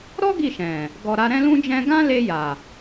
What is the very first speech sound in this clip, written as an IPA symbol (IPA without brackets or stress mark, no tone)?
ɾ